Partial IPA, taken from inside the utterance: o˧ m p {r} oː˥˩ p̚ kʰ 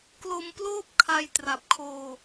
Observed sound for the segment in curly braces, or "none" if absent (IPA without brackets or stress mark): l